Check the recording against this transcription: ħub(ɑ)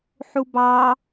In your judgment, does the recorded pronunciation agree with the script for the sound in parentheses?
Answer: yes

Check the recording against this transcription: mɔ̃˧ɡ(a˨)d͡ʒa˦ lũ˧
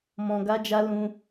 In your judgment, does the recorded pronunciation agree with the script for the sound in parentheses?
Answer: no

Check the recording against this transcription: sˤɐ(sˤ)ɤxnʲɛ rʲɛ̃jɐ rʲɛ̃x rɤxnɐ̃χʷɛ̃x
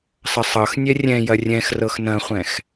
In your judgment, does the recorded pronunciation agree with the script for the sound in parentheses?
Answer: yes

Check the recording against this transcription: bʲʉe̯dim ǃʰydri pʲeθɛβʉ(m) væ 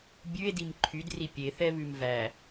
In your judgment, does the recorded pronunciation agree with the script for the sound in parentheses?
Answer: yes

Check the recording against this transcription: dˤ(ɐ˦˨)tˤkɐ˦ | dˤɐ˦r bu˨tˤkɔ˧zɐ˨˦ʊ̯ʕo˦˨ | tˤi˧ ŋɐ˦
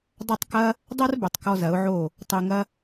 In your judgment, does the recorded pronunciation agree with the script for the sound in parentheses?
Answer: yes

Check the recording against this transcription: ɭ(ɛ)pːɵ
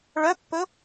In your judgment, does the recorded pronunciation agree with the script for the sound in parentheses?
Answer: no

